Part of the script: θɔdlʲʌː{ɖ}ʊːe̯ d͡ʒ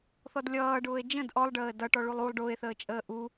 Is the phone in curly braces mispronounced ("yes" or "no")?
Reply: no